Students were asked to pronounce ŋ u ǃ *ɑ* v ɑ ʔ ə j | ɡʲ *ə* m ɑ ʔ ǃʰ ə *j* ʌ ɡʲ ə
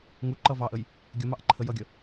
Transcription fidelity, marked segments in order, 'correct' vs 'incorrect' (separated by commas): incorrect, correct, correct